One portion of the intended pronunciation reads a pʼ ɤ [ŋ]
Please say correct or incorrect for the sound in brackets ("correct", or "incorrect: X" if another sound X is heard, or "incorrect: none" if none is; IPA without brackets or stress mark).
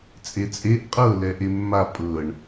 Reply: incorrect: ɳ